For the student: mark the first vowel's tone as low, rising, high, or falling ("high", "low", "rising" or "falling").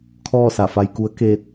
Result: falling